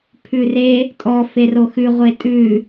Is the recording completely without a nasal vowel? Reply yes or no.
yes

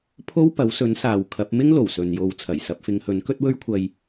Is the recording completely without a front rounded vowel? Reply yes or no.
yes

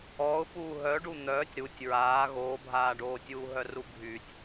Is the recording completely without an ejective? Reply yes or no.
yes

